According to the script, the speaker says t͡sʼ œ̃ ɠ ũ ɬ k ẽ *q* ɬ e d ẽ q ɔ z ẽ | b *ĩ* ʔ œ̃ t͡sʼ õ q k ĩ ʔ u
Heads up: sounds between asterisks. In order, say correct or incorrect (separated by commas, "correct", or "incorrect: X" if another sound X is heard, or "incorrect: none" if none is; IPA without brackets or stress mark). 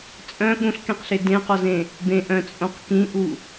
correct, incorrect: ẽ